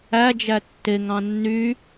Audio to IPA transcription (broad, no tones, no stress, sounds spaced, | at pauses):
æ d͡ʒ æ tː e ŋ ɑ̃ nː y